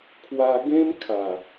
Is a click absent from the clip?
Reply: yes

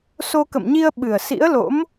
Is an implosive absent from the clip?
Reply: no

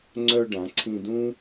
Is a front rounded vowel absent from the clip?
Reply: no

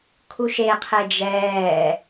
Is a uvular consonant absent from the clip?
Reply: no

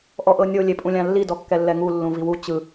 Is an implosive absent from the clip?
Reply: yes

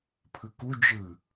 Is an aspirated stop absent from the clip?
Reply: no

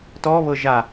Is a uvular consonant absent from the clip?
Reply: yes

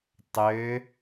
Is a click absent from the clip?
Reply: yes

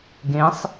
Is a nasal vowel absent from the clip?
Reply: no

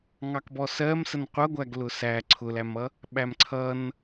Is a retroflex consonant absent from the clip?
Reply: yes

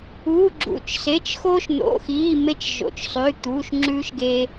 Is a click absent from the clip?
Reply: no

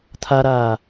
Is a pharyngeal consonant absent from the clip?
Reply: yes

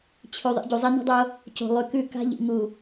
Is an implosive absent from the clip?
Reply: yes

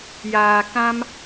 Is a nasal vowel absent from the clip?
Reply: no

